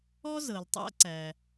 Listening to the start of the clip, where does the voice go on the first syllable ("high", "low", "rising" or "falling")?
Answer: high